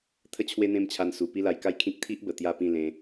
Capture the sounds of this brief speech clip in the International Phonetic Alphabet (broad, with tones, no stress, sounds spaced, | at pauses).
t̪ʰ ə˥˧ t͡ɕʰ w e˦ n̪ ẽ˦ m t͡ɕʰ a˧ n s u˨˩ p i˦ l a˧ j k a˥˧ j kʰ ĩ˦ k̚ t̪ʰ i˦ ʔ b ə˨˩ t̪ j a˥˧ p ĩ˥˧ l ẽ˧